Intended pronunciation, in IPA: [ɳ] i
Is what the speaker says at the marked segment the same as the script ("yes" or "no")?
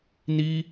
no